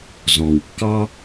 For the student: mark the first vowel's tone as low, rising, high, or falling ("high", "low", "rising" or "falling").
low